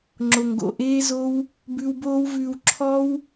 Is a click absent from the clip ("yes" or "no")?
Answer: no